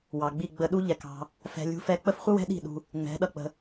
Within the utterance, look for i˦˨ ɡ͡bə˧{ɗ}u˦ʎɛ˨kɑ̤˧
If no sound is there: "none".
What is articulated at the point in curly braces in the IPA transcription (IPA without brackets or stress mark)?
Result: ɗ